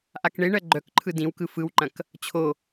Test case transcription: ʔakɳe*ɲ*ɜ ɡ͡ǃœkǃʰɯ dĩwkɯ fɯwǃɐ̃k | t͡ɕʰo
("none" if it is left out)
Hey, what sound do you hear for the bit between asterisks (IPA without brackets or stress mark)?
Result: ɳ